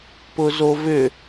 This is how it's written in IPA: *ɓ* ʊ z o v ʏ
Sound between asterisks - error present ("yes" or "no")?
yes